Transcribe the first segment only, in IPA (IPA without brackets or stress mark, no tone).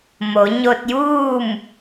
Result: m